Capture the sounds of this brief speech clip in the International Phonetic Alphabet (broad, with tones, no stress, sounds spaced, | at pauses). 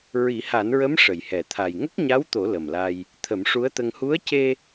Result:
ɹ i˨˩˦ h a˨˩˦ n ɹ ə˧˥ m ʂ ə˨˩˨ j h ɛ˨˩˨ t̪ʰ a˨˩ j ŋ ə˦˥ k̚ ɲ a˧˥ w t̪ o˨˩˦ l ə˨˩ m l a˧ j | t̪ʰ ə˨˩˦ m ʂ u˧˥ ə̯ t̪ ə˧ ŋ h u˧˥ ə̯ c e˧